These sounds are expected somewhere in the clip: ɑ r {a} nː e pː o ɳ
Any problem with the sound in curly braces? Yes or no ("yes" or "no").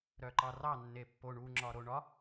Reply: yes